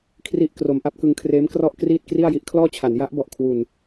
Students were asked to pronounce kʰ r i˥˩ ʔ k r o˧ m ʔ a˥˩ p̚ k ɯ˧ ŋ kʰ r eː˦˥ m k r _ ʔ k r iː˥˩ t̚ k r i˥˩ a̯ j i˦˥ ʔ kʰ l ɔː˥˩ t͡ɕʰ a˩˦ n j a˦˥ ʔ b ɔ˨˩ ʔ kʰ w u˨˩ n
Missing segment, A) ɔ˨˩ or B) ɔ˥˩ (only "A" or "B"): B